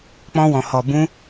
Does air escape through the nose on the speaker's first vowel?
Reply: yes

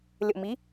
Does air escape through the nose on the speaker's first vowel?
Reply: no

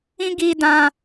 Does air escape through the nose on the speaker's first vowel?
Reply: yes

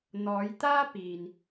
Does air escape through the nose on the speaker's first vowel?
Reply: no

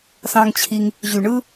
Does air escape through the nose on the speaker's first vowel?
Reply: yes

